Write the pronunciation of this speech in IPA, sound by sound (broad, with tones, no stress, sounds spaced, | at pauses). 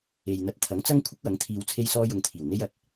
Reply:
e˨ j n̪ ɐ˧ t̚ t̪ʰ ɐ˨˥ ŋ t͡s ɐ˥ ŋ kʷʰ ɪ˥ k̚ w ɐ˨˥ ŋ t̪ʰ iː˧ w t͡sʰ e˥ j s ɔː˥ j ʊ˧ ŋ t̪ʰ iː˨˩ w n̪ e˥ j ɐ˧ t̚